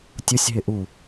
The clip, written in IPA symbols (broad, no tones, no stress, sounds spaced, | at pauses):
tʲ ʊ sʲ ɦ ɪ ʔ u